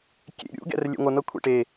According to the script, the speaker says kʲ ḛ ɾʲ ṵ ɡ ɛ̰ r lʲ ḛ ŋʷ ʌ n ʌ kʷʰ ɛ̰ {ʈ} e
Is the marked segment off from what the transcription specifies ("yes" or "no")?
no